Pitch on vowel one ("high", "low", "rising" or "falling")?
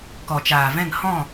low